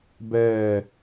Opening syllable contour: falling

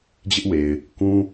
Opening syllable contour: high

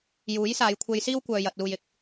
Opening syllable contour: rising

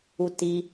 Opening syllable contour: low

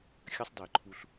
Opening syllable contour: high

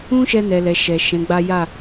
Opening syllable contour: high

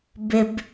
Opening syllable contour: high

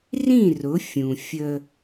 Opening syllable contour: falling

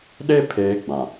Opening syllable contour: high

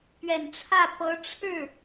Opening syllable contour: low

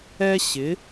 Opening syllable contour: high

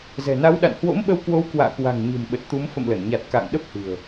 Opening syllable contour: low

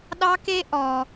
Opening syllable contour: high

